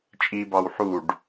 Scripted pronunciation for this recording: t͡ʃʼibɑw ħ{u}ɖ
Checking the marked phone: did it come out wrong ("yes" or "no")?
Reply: no